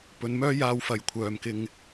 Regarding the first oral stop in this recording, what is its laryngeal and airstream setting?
plain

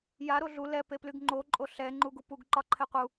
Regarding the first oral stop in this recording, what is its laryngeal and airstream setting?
plain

